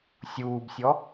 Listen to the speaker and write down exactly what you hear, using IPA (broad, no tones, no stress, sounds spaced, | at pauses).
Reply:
sʲ uː b sʲ ɔ